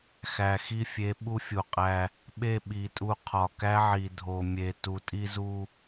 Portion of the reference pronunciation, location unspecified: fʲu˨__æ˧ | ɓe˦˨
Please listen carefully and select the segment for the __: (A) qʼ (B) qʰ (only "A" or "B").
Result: A